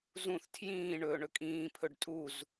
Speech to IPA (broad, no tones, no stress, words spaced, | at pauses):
zũθ tʰjĩː ɳɵːɳɵkʼĩː pʰɵɖtʼuz